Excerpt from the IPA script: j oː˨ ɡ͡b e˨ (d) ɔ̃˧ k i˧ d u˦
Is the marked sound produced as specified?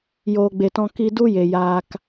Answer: no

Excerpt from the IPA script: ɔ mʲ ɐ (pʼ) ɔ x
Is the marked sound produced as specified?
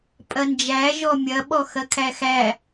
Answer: no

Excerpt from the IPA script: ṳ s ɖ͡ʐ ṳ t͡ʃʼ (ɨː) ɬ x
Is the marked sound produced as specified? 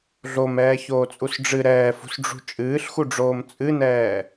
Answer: yes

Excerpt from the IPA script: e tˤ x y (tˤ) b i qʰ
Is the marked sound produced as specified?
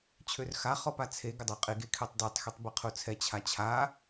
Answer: yes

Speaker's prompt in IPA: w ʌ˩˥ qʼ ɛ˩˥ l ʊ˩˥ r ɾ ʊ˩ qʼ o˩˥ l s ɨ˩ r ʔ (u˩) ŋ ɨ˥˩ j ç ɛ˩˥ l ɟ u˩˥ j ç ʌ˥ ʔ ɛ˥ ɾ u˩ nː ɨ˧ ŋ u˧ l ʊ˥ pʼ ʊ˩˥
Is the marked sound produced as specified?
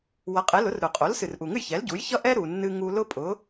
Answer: yes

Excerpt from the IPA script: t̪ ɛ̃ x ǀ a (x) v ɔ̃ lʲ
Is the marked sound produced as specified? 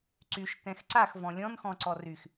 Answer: yes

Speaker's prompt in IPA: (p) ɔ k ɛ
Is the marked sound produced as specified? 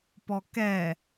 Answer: yes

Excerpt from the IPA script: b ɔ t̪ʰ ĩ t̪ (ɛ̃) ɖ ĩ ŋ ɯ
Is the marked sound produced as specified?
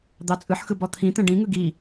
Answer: yes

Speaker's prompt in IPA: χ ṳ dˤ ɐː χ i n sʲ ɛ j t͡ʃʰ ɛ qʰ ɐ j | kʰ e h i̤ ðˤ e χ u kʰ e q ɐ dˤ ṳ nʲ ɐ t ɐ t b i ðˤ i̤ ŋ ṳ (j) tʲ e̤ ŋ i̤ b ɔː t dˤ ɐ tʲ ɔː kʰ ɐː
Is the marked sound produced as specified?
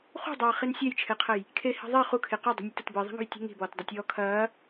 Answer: yes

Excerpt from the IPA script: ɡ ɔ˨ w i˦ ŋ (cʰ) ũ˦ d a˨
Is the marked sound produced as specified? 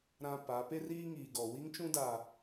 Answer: no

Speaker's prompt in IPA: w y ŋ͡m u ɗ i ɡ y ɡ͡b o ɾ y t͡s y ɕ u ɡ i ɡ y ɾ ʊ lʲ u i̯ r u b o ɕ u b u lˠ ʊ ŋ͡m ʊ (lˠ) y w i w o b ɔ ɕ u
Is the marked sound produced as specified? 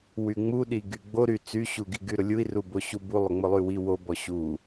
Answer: yes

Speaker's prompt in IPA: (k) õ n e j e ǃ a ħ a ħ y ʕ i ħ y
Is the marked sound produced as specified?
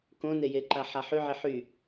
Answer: yes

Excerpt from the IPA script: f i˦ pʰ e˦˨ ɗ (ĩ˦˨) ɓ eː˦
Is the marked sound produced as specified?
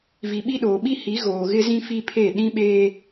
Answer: no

